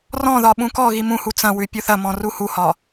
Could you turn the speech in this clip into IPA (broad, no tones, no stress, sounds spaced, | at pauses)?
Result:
r ɔ̃ ð ɒ ɓ ũ k ɔ ɣ i m ũ h u t͡s ɐ̃ w ʉ pʲ u θ ɐ m ɔ̃ r u h u h ɒ